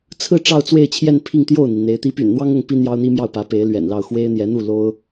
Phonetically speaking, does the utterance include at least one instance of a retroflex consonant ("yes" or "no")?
yes